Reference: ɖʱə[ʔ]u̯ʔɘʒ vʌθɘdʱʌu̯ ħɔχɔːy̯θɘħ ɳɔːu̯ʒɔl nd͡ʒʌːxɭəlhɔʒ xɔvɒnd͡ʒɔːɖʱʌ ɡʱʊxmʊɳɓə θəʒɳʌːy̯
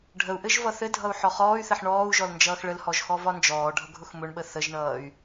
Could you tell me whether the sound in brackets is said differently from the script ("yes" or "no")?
yes